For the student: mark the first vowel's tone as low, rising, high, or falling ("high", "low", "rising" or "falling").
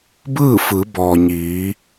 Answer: falling